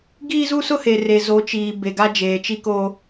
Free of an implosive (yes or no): yes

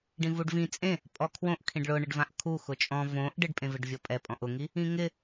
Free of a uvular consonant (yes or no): yes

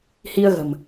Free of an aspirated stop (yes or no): yes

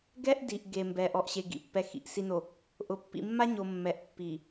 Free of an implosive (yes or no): yes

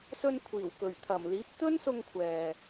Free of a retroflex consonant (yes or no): yes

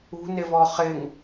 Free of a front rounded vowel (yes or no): yes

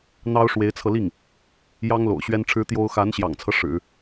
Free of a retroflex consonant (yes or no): no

